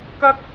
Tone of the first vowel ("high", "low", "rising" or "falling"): high